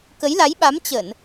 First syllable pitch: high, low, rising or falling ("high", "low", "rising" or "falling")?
rising